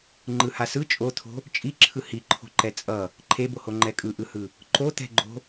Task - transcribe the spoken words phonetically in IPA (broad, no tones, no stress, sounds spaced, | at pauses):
ŋ͡ǃ ɯ h a s ɯ t͡ʃʼ o t̪ʰ o̤ | t͡ʃʼ i ǁʰ ɯ h i ǃʰ o̤ ǃ ɛ t͡sʼ ʌ | ǃʰ e b o h o ŋ͡ǃ ɛ kʼ ɯ ʔ ɯ h ɯ | ǃ o t̪ ɛ̤ ɡ͡ǃ o̤